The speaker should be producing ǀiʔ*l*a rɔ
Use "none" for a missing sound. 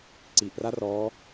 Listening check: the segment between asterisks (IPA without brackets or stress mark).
r